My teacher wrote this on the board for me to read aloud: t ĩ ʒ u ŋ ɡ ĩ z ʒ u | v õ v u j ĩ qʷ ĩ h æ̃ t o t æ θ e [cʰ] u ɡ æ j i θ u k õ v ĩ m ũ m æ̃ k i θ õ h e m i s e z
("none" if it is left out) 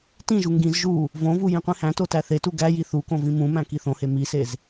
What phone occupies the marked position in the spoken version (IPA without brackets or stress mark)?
t